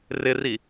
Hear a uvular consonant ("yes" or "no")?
no